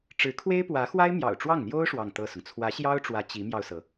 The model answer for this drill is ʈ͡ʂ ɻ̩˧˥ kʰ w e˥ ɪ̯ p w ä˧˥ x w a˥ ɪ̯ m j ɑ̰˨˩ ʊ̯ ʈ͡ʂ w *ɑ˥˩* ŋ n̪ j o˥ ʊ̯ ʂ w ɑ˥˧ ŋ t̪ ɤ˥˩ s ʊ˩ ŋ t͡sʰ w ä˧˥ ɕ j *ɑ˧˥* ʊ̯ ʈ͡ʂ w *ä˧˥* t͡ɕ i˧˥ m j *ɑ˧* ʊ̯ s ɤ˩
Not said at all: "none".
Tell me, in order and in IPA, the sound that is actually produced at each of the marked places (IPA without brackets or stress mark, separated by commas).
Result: ɑ˥˩, ɑ˥, ä˧˥, ɑ˧